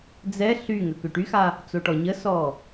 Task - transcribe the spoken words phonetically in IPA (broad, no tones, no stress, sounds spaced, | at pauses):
d͡z ɛ ɬ y ŋ ə k ø ʈ y x a | t͡s o ʈ ɔ ɲ ə s ɔ